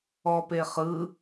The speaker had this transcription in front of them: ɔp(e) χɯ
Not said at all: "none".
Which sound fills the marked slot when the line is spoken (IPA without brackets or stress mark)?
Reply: e